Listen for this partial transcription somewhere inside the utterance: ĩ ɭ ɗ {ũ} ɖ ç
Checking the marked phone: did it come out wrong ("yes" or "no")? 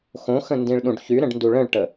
no